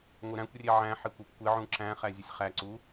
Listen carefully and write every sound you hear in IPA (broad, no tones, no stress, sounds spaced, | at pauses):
ŋʷ ɪ ɾ æ̃ kʷ rʲ e ʕ æ̃ ħ ɪ kʷ ɤ p kʷ ɪ ʕ ũ ǁ æ̃ χ æ zʲ ə sʲ χ æ ǀ u